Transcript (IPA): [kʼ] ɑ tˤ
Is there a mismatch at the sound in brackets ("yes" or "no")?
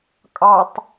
no